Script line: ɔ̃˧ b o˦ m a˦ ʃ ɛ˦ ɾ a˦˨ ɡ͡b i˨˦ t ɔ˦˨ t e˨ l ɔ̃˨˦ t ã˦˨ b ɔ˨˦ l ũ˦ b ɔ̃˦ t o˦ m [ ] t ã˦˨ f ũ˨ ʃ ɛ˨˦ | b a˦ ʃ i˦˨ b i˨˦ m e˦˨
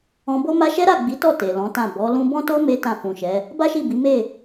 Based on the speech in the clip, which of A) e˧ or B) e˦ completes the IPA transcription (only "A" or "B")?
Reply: B